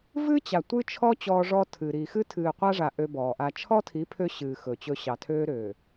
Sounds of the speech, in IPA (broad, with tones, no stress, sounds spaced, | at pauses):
v ɨ˦ t͡ɕ a˨ tʷ ɨ˦ t͡ʃʰ ɔ˦ t͡ɕ ɔː˦ ʐ ɔ˦ tʰ ɨː˨ ɾ i˨ x ɨ˦ tʰ ɨː˨ qʷ a˦ ʐ a˨ ʔ ø˦ b ɔː˨ ʔ a˦ t͡ʃʰ ɔ˦ tʰ i˨˦ pʰ ø˦ ɕ ɨː˨ x ɵ˨ t͡ɕ ɵ˦ ɕ ɑ˨ tʰ øː˦ ɾ øː˨